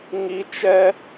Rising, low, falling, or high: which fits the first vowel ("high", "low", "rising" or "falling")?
high